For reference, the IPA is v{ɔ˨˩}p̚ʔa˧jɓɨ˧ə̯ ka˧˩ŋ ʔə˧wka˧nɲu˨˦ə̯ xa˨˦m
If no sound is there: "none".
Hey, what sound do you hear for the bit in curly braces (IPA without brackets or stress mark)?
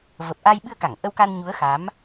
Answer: ə˨˩